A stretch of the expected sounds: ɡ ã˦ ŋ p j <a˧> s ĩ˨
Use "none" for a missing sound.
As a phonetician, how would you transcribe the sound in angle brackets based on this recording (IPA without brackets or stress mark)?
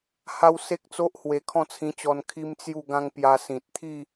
a˧